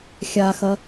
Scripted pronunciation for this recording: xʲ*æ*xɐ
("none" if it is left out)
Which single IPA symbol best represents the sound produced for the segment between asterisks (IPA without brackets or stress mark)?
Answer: a